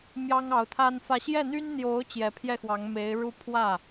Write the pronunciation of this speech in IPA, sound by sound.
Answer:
m j ɑ˥ ŋ ɑ˧˥ ʊ̯ t̪ʰ a˥ n f ä˥˧ ɕ j ɛ˥˩ n̪ y˥ n n̪ j o˧˥ ʊ̯ t͡ɕ j ɛ˧˥ pʰ j ɛ˥˩ x w ɑ˧˥ ŋ m e˧˥ ɪ̯ ɻ u˥˧ pʰ w ä˥˩

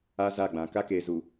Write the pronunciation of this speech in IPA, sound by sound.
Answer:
a˦ z a˦˨ ɡ͡b ã˨ k a˦ k eː˨ z u˨

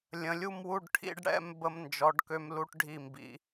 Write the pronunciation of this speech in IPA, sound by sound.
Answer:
lʲ ə̃˩˧ lʲ u˥˧ m w u˥˧ ɖ ʈʰ ḭ˧ ɖ ɽ ɛ̰˧ m b ə˧ m n d͡ʒ ɔ˩˧ ɖ k ø˧ m l u˧ ʈ ɖʱ i˧˩ m b ḭ˩˧

